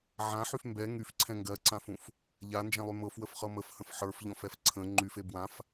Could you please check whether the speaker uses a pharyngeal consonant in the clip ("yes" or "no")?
yes